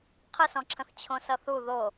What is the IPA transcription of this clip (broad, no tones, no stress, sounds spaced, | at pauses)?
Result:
qʰ ə s ɔ̃ ǁʰ ə̃ θ t͡ɕʰ õ s ʌ θ u ð o